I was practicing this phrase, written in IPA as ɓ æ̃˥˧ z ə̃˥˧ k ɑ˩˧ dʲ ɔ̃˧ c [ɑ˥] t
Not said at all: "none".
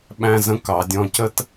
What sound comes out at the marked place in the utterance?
ə˥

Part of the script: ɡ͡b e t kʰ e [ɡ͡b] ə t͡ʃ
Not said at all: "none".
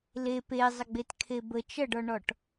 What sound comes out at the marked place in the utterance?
b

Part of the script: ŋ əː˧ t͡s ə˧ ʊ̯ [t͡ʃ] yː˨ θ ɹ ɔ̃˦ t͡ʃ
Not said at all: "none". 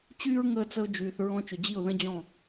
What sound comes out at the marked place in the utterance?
d͡ʒ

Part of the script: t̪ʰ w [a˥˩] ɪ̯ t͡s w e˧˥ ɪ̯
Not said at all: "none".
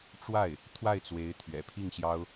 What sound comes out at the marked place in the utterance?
a˥˩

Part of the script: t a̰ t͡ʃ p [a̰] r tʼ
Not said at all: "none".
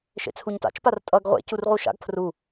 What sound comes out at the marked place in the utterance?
a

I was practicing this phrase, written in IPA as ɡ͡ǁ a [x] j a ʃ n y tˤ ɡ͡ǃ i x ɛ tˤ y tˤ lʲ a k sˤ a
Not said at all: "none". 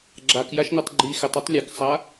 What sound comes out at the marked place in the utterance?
k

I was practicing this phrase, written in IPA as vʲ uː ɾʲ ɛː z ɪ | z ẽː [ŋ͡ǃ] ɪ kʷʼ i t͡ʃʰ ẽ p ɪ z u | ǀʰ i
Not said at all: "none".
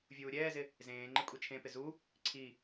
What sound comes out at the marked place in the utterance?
ŋ͡ǃ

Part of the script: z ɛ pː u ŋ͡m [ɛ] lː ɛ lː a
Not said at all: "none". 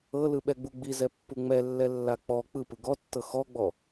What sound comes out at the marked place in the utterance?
ɛ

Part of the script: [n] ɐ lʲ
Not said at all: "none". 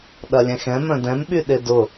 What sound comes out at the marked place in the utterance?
ɗ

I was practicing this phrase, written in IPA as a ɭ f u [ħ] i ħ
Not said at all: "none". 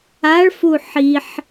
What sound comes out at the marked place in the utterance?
ħ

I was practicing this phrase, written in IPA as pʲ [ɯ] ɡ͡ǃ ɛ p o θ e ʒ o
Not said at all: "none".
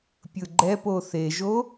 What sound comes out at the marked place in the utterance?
ɯ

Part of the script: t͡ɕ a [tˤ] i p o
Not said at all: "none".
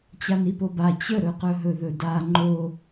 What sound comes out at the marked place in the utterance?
n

